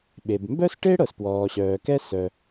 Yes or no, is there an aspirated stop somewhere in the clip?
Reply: no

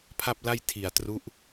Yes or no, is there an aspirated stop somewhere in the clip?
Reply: yes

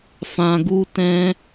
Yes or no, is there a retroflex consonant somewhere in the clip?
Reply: no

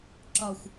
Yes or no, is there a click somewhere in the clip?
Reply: yes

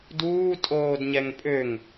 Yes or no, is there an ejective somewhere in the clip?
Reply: yes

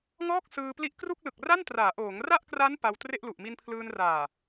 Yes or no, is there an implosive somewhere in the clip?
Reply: no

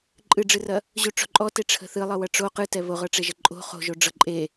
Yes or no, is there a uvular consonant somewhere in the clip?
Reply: yes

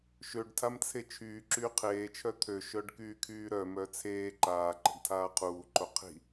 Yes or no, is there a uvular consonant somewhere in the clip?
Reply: yes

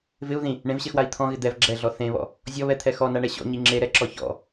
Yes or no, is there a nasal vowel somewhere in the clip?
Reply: yes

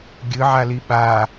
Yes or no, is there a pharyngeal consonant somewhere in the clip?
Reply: yes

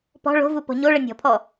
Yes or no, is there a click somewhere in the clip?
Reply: no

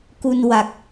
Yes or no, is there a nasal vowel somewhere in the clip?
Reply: no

